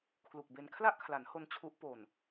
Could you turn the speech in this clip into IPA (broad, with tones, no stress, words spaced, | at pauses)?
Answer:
kʰlu˨˩k̚be˧n kʰla˥˩ʔkʰla˩˦nho˧n t͡ɕʰu˦˥ʔ po˨˩n